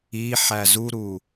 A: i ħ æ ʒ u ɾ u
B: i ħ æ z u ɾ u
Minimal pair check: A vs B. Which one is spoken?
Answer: B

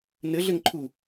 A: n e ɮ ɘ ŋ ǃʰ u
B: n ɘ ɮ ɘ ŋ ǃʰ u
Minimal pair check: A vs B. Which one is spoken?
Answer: B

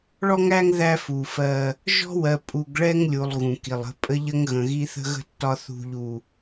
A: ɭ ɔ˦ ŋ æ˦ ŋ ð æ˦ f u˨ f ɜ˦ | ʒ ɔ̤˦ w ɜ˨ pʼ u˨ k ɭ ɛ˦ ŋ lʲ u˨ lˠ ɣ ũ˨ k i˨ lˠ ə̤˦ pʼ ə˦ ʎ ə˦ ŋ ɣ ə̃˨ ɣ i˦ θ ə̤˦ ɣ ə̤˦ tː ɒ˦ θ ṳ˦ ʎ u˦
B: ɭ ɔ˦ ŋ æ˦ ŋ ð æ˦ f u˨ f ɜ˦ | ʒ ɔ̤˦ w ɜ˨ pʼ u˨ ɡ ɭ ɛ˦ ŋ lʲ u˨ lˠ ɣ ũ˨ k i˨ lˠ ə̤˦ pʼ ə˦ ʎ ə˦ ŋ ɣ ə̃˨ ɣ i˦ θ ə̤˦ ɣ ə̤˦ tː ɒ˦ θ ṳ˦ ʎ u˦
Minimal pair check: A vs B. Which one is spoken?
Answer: B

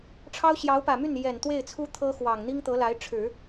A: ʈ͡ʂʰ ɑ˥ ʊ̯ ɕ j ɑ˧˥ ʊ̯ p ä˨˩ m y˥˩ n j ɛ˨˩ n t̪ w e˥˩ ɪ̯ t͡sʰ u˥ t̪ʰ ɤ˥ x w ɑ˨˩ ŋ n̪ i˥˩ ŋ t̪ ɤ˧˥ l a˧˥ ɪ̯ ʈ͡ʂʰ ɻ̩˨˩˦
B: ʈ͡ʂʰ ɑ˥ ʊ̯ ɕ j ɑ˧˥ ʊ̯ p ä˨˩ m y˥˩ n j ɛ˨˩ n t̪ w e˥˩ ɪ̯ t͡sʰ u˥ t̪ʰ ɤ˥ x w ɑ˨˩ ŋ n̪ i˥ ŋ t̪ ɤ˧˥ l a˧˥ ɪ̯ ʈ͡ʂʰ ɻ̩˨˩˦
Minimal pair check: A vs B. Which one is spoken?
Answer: B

